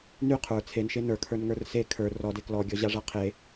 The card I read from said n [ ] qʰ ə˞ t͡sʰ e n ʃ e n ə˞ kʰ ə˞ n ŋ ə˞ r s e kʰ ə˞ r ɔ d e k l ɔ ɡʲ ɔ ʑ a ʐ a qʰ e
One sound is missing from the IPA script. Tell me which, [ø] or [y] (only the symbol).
y